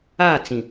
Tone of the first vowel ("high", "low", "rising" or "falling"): falling